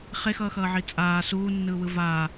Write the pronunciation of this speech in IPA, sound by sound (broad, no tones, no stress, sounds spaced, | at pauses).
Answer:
χ e x ʌː x ʌː ʕ i t͡sʼ aː s uː nː ɯː w ɯ v aː